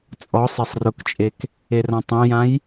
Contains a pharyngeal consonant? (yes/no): no